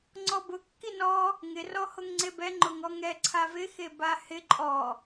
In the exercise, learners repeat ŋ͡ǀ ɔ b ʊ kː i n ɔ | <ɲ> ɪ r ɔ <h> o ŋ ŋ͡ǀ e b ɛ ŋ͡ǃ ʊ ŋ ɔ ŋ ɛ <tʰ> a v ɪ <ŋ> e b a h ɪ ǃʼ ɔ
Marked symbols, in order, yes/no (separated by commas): no, yes, no, no